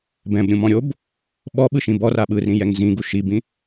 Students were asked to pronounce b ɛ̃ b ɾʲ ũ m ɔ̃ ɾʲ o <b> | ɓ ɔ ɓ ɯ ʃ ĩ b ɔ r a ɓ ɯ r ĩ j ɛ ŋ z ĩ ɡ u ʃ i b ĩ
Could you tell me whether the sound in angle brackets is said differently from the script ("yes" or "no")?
no